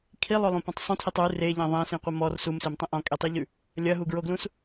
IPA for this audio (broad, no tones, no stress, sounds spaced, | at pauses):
kʰ i lˠ o lˠ ũ p ẽ tˤ sˤ ũ tʰ i tˤ ʉ r e ʎ ẽ ðˤ ẽ s ĩ qʷ ɐ m ɔ r s u m s e m tˤ ẽ ʔ ɔ̃ kʼ i tˤ i ʎ ʉ | lʲ ɐ ɦ u ɡ ɹ o ɡ l ũ s